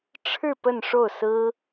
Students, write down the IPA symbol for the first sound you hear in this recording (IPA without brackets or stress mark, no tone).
ʈ͡ʂʰ